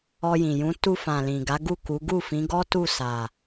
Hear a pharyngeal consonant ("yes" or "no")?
no